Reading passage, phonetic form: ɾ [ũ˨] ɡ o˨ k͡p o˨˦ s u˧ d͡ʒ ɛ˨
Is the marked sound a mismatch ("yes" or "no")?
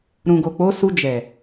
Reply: no